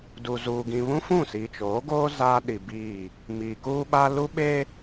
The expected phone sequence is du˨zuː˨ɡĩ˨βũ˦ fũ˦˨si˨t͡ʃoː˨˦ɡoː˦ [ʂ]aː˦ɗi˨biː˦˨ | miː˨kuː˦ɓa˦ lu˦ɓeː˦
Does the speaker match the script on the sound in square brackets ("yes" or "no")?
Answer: no